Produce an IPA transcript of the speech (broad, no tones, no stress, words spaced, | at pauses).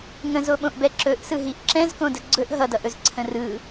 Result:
ŋə̃zoɓõʔbɛ ǁɵʔsɯɦiʔ ǁɛ̃zkõdə ɡ͡ǀɵʔ ɦʌdʌʔɵzǀʰə̃ rɯ